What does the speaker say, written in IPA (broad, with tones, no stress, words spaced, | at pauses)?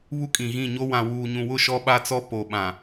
βu˦kʼĩ˨ɣĩ˦˨ɲo˦ wã˨wuː˨ɲũ˨wʊ˦˨ ʃɔ˦ɓa˦t͡sɔ˦ po˨ɓã˨